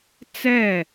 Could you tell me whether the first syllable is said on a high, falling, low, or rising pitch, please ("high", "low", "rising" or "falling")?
falling